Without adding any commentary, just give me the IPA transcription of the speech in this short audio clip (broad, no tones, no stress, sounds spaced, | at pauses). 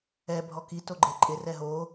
ɛ bʱ ɔ k i t o ɡ͡ǃ e ǃʼ ɪ r ɛ ɦ o